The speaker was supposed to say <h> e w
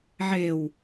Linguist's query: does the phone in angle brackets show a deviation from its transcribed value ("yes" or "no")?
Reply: yes